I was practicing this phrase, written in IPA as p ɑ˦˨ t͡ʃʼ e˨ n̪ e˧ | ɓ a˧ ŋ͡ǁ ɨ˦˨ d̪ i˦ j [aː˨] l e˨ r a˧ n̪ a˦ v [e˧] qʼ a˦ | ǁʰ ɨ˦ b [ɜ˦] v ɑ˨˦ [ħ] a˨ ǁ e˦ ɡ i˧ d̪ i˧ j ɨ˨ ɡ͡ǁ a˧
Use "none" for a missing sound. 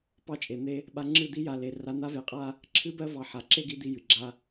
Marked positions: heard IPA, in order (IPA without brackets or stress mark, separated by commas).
a˨, e˧, ɜ˦, ħ